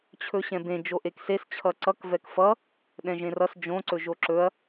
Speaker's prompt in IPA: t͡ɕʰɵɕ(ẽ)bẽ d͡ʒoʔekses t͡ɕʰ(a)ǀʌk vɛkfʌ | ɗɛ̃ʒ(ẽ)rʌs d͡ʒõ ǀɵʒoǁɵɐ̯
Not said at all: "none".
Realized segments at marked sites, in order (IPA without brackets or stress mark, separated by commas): ɛ̃, ʌ, ẽ